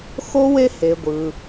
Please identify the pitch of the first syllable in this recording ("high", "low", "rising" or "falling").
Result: high